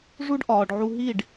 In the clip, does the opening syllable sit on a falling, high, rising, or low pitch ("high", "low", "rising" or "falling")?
high